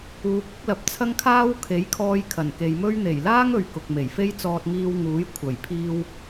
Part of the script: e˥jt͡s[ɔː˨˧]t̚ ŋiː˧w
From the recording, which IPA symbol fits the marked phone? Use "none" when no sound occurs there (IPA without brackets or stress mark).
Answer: ɔː˧